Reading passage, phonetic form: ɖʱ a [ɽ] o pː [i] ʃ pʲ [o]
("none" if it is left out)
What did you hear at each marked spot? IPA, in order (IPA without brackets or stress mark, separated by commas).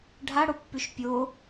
ɽ, y, o